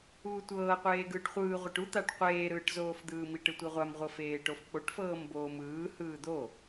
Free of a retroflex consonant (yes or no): no